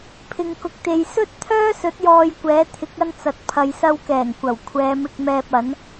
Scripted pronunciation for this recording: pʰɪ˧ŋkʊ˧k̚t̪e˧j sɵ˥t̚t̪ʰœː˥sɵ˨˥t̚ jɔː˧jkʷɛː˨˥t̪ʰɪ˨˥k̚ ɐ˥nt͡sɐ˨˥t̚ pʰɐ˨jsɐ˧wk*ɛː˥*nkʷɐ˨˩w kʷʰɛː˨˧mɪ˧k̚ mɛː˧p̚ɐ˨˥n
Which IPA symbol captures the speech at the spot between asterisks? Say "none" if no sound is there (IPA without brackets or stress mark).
ɛː˨˩